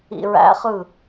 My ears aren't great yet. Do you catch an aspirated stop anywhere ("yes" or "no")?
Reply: no